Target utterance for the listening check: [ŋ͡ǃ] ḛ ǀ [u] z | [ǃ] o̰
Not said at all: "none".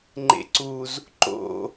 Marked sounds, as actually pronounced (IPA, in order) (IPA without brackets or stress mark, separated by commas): ŋ͡ǃ, u, ǃ